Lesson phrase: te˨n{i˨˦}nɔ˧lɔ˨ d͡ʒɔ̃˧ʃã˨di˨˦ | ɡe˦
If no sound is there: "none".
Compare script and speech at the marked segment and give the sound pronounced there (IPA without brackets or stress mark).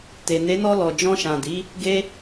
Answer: e˨˦